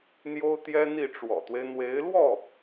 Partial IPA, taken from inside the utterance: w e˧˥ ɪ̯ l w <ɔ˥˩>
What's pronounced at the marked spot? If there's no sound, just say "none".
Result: ɔ˥˩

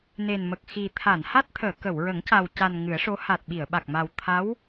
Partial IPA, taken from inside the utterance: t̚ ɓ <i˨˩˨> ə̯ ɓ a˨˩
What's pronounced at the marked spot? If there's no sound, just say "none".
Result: i˨˩˨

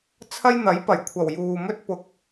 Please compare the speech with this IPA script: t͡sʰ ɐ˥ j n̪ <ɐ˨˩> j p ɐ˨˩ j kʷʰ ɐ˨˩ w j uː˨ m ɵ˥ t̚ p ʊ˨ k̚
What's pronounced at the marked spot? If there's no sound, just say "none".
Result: ɐ˨˥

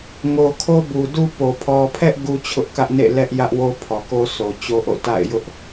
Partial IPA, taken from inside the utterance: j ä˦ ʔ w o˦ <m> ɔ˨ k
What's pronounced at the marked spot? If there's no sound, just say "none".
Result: pʰ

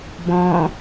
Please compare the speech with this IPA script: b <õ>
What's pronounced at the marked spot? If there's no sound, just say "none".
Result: ɔ̃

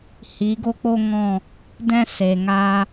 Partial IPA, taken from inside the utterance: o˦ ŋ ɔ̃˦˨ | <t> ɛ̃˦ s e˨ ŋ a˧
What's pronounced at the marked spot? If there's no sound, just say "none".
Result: d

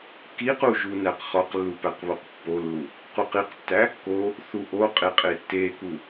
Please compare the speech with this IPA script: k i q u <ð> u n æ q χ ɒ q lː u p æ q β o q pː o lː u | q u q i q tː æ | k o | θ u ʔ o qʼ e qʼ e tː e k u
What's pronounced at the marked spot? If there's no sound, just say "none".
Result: ʒ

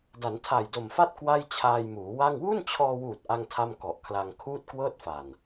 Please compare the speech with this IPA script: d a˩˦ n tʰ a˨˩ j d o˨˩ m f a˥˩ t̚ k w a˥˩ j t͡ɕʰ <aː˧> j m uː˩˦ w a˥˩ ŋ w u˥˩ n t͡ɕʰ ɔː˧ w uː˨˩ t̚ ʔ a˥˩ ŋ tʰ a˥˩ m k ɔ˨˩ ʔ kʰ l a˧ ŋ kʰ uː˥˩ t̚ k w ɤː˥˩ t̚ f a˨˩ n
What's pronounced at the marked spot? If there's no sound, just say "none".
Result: aː˧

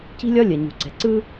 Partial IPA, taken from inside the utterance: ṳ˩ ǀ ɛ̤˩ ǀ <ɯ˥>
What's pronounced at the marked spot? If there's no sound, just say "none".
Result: ɯ˥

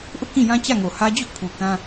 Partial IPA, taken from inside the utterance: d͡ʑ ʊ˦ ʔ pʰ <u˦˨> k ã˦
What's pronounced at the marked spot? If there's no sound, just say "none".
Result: u˨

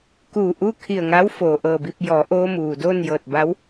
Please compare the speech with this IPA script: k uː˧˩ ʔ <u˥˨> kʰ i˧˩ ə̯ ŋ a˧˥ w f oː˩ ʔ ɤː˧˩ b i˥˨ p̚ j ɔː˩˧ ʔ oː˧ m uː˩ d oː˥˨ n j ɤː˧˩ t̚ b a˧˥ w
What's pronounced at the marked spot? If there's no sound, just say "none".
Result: u˥˨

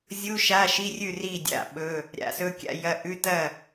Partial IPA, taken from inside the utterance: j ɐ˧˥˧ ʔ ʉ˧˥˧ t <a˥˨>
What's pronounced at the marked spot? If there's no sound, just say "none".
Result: ɐ˥˨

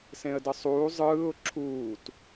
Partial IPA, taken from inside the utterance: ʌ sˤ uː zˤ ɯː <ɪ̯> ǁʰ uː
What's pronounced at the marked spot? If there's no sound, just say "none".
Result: ʊ̯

